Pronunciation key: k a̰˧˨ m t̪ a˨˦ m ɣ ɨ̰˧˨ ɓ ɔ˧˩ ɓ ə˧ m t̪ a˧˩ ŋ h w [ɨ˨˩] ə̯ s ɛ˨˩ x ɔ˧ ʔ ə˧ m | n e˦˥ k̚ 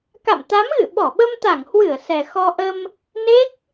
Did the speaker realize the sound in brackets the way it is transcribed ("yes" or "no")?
no